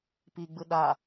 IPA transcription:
p i ɡ͡b ɯ ɗ a

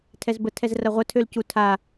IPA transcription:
tʰ ɛ z b ə tʰ ɛ z r ɐ ʁʷ ə tʰ ø l c u tʰ a

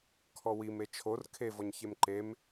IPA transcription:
kʰ ɔ w i m e t͡ʃʰ o r kʰ e v ɔ ɲ ç e m ǃ e m

